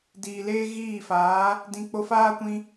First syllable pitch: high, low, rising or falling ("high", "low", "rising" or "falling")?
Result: low